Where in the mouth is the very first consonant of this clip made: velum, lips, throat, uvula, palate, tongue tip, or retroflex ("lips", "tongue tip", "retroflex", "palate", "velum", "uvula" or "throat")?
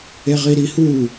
uvula